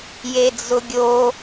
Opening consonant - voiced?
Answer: yes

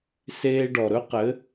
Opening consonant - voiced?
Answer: no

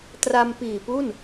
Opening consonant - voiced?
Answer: no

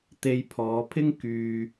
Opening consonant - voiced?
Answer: no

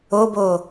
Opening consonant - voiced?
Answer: yes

